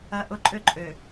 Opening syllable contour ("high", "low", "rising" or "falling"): low